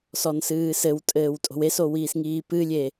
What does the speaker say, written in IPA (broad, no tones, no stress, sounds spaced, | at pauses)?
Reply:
s ɔ n s ɨː s ɘ w tʼ ɘː w tʼ o̤ w e s o w iː s ŋ iː p ɨ lʲ e